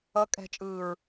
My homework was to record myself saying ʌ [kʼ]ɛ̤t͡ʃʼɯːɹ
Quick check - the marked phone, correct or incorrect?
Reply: correct